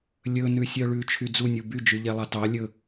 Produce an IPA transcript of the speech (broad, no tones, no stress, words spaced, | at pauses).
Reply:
lʲɵ nʉsʲœɭʉ t͡ʃʰyd͡zu nʲuby d͡ʒyʎɛlˠɑtɑ lʲɵ